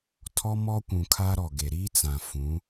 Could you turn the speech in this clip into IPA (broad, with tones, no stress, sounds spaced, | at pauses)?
tʰ ɔ˦ m ɔ˦ kʷ ũ˨ kʰ a˦ ɾ ɔ˨ ɡ e˨ ɾ iː˦ t͡s ã˨ f ũ˨˦